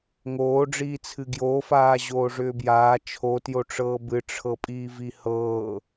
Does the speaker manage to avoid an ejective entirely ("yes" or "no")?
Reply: no